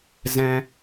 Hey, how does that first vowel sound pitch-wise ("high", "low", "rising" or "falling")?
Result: high